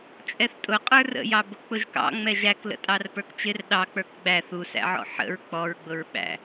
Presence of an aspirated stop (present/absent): absent